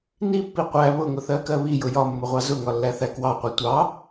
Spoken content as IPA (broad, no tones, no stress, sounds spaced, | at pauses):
n i pː i qʷ æ β ʊ ŋ ʊ θ ɜ k ɜ β i j ʊ j ɒ mː ʊ ʁʷ ɑ z ʊ ŋ ɒ lː æ θ æ k w ɑ qʷ i tʷ ɑ